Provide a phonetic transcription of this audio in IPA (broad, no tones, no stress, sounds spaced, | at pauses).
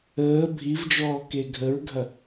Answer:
əː bʱ i v d͡ʒ ɔː k e ɡʱ ə ɹ ɡʱ ɐ